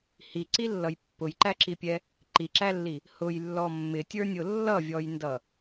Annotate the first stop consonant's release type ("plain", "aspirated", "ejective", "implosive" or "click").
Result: click